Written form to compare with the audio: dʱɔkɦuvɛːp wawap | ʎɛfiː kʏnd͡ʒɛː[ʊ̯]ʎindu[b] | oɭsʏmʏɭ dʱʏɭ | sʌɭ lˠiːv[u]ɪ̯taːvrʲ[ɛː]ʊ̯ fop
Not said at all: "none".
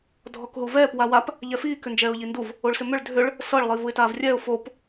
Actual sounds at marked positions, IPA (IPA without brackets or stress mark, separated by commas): ʊ̯, v, u, ɛː